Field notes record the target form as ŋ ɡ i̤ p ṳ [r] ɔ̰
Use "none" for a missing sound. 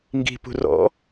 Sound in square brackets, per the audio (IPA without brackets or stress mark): r